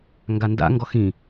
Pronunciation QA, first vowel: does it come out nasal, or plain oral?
oral